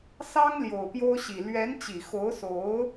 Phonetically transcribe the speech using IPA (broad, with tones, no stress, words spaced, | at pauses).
sɑ˥ŋ ljo˨˩ʊ̯pjo˥ʊ̯ɕi˨˩ lɥɛ˧˥nt͡ɕi˨˩xo˧˥ʊ̯so˧˥ʊ̯